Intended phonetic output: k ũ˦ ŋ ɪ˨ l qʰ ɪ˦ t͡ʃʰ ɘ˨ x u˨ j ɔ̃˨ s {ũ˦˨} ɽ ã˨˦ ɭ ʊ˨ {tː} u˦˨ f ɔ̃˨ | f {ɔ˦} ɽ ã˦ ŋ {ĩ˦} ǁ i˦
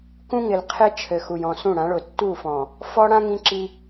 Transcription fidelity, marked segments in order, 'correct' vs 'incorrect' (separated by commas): correct, correct, correct, correct